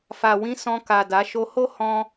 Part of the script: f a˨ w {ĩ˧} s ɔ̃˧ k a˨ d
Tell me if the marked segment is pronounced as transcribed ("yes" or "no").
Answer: yes